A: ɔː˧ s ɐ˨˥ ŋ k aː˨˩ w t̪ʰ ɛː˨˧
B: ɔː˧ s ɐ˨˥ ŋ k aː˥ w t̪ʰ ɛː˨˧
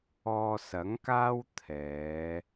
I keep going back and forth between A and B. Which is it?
B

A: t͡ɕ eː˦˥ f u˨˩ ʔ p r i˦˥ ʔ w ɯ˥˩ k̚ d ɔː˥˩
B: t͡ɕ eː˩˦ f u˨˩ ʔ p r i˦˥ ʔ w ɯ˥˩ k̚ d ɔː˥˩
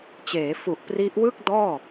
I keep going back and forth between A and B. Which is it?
B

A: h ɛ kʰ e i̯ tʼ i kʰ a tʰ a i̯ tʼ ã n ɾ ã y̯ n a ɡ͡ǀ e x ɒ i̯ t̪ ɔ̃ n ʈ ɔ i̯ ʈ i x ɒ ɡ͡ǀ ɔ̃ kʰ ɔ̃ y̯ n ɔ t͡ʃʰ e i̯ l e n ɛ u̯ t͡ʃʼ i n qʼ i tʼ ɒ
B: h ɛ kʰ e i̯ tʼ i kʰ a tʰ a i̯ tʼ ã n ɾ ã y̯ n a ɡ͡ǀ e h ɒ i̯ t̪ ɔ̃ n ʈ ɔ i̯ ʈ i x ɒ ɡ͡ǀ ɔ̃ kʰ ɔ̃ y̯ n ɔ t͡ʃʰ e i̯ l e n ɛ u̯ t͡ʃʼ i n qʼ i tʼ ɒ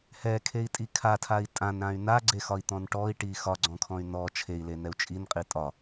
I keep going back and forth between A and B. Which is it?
A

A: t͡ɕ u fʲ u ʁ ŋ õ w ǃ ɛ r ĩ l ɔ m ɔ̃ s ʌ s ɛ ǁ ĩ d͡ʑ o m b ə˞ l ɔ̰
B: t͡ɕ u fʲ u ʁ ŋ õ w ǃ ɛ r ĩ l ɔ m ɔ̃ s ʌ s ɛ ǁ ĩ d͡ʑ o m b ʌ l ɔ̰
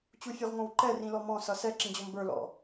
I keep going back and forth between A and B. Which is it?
A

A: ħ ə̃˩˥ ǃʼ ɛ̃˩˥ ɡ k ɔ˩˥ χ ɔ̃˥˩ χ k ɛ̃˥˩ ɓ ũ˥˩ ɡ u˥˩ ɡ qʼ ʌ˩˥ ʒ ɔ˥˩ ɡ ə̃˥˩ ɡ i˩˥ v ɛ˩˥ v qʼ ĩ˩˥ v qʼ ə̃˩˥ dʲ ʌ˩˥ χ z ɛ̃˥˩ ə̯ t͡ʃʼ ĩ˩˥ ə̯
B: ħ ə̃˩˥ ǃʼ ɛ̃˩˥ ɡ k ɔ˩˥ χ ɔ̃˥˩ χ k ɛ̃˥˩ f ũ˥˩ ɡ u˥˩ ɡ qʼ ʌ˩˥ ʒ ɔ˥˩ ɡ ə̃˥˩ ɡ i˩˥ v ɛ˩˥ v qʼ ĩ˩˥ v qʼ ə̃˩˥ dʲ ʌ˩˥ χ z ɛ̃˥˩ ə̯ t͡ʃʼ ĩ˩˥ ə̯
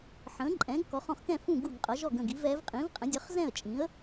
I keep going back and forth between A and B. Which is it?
B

